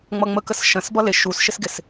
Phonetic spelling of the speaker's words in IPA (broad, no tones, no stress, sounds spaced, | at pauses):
ŋ͡m ʌ ŋ͡m ə k ə s ʃ ə̃ s b ʌ l ɪ ʃ u s ʃ ɪ s ɡ ɪ s